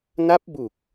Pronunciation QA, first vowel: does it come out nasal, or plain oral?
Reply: oral